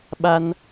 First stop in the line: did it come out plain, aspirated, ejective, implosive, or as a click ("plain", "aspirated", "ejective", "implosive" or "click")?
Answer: implosive